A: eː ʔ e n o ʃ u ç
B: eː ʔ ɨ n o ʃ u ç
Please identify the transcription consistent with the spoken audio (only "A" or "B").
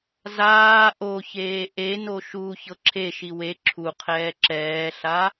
A